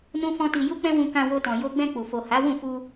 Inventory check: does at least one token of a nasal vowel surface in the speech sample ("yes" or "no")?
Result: yes